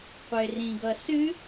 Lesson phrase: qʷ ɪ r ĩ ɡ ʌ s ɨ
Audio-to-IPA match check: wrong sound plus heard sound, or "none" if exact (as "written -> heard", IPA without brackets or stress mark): none